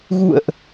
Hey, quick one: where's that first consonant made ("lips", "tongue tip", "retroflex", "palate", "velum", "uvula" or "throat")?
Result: velum